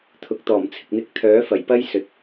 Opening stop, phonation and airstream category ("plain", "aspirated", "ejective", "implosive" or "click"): aspirated